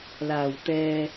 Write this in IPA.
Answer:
l aː˨˩ w t̪ ɛː˨

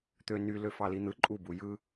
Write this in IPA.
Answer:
t̪ ø n y l ø f ɑ l i n̪ ɯ ǃʼ u b u j ɯ

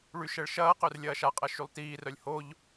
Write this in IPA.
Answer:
ɭ y ʃ ɛ ɭ ʃ ɐː q ø r lʲ ɐː ʃ a qʼ ɐ ʃ y lˠ t iː r œ lʲ h o ʎ

